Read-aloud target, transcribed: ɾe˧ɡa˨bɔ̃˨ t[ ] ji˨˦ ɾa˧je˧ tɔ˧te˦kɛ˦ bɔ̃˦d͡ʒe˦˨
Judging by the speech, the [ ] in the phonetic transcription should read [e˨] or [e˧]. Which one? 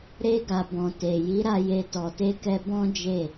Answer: e˨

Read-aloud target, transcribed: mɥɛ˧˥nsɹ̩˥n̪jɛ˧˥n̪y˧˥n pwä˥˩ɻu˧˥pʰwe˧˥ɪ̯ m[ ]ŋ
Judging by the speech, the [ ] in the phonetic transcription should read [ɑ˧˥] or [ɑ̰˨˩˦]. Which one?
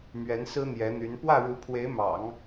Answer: ɑ̰˨˩˦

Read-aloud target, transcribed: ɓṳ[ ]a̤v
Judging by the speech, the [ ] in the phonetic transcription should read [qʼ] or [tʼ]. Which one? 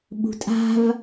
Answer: tʼ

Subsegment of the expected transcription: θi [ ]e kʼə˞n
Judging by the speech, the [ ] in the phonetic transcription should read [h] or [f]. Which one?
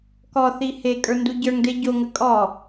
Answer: h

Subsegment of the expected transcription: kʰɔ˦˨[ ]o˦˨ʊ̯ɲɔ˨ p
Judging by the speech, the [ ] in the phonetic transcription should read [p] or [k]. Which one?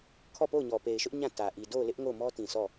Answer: p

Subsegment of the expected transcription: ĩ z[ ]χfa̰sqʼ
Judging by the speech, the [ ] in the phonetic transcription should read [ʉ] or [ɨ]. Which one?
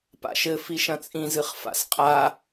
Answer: ɨ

